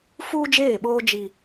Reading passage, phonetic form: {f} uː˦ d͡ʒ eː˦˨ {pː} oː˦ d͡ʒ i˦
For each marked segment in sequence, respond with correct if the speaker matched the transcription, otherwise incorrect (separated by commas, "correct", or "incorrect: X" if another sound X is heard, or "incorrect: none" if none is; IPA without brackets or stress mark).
correct, incorrect: ɓ